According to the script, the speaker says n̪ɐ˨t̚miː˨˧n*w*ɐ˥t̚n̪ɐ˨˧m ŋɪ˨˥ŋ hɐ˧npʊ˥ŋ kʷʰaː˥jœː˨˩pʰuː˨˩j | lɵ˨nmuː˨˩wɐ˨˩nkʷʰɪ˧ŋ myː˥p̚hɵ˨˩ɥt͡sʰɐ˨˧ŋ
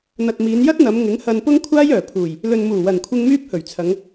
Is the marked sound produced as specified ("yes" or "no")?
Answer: no